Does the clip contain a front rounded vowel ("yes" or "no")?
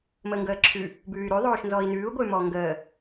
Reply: yes